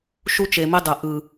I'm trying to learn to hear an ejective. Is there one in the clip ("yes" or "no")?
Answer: no